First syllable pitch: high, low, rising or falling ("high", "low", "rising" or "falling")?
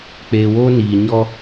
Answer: low